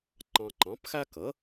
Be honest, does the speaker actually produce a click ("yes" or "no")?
yes